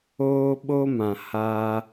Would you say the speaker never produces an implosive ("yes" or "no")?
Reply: no